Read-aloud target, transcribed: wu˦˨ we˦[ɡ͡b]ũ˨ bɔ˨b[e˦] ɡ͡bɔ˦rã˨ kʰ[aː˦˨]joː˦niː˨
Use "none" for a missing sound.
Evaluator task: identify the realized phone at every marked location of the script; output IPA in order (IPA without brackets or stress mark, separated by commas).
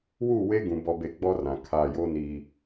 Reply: ɡ, e˨, aː˦˨